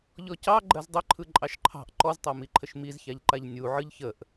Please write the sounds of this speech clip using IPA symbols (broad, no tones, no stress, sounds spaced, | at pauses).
ʎ ɔ c ɑ ɡ͡ǃ ɜ z dˤ ə ǃʰ ɯ ǃʼ ɑ ʃ ǃʰ ɑ̤ ʔ ǃ ɔ z tˤ a m i ǃʰ ə ʃ m i z ç a ʎ ǃ a ʎ nʲ u ʕ ɯ ʎ ç ə ʔ